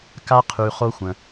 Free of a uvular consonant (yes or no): no